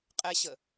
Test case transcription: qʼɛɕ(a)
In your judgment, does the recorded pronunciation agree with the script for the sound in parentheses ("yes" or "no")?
no